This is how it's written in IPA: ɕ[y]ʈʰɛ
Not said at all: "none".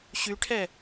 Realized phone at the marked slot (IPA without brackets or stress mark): y